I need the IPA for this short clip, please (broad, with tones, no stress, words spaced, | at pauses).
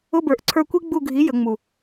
ʊ˧˥˧bə˞˩˧ʔǀʰə˞˦˨kʷi˥ ɡ͡bu˦˨ɡʱi˨˥ jə˩˧ŋ͡mu˨˩